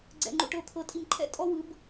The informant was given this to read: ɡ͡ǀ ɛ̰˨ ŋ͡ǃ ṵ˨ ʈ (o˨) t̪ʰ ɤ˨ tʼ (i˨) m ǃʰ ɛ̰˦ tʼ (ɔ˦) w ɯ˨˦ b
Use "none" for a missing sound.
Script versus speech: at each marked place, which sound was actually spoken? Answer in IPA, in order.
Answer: ɤ˨, i˨, ɔ˦

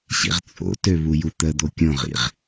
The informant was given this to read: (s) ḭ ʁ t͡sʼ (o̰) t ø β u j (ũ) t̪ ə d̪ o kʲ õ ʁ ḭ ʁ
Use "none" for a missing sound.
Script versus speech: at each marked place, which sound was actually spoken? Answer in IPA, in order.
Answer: ɕ, o̰, u

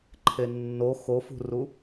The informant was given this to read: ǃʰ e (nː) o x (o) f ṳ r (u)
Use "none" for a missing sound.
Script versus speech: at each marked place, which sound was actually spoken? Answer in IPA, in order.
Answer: nː, o, u

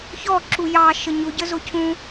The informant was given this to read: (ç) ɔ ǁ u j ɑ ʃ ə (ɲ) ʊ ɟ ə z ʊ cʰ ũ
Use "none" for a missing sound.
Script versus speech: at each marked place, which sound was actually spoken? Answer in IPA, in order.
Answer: ç, ɲ

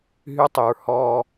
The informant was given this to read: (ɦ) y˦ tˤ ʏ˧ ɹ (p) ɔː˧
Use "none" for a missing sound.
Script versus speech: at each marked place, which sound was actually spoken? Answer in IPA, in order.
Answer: ɦ, h

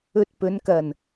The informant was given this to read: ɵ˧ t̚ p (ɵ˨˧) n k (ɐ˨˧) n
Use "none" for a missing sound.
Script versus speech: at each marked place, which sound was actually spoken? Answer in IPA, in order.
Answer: ɵ˨˧, ɐ˨˩

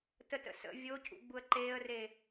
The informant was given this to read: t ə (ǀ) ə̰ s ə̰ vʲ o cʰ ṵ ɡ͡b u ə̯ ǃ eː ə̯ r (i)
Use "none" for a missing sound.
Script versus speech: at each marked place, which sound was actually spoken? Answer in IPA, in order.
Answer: t, e

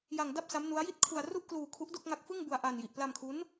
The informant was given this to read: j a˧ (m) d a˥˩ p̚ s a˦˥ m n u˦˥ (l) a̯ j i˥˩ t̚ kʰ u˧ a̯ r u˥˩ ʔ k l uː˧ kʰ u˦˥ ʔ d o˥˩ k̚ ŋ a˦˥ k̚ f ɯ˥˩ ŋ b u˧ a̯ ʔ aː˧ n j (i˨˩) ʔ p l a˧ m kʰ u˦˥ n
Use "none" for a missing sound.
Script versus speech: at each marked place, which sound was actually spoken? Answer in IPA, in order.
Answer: ŋ, none, i˨˩

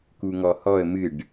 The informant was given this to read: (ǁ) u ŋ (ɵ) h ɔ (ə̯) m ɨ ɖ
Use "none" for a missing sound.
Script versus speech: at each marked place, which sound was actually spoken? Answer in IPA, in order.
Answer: k, ɔ, ə̯

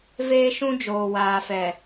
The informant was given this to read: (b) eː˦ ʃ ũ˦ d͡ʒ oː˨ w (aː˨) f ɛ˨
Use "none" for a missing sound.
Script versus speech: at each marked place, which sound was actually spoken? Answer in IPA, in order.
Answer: v, aː˨

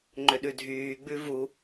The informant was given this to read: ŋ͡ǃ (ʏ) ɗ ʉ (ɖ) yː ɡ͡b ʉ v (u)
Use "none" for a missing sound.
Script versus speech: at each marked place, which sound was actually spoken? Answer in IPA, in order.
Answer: ʏ, dʱ, u

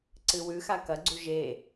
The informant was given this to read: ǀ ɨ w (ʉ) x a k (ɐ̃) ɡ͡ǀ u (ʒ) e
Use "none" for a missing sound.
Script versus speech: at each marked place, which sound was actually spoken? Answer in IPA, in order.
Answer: ʉ, ɐ, ʒ

